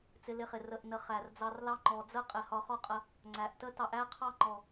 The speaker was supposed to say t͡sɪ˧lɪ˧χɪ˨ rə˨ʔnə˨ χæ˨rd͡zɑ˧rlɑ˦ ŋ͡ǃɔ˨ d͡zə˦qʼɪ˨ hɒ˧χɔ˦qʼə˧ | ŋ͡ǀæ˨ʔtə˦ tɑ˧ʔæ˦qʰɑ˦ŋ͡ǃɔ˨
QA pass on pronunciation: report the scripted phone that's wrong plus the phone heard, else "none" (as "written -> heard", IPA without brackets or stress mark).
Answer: none